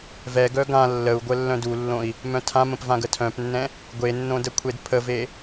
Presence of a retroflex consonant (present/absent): absent